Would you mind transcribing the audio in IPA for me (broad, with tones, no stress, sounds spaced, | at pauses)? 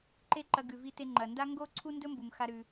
ǃ e˥ ǃ ɐ˧ ɡ ʉ˩ v i˧ t e˧ ŋ͡ǃ ɐ˩ n d a˥ ŋ ɡ o˥ ǀʰ u˥ n d ɵ˥ m b u˩ m x a˧ ɾ ʉ˩